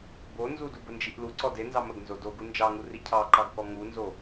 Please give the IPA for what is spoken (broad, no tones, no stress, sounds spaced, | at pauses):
b o n z u d u b ə n d͡ʒ i ʔ l u ǀ ɔ d e n z ɑ m ə ɡ n z o d o ɡ u n d͡ʒ ɑ ŋ u r i cʰ ɑ ǃ ɑ ɡ k ɔ ŋ u n z o